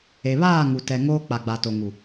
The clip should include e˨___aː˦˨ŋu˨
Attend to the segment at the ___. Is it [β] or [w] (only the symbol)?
β